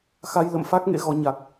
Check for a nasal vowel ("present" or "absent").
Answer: absent